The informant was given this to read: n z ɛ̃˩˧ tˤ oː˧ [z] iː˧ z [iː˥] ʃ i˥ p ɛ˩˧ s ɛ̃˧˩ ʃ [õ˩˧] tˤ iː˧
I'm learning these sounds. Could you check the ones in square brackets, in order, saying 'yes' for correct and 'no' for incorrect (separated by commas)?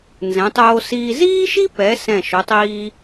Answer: no, yes, no